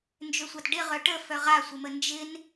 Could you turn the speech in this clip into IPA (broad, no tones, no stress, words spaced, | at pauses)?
nd͡ʒøsʷatɖɪʁœ ʈə fœʁasʷɪmə nd͡ʒɪn